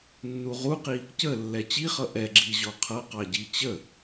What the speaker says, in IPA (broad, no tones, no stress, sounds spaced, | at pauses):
nː u ʁ u q i | c ə lː ɛ t͡ɕ i χ ʌ ʔ ɛ ɡ͡ǁ i ʑ ɔ qʰ ʌ q ɑ ɟ i t͡ɕ ə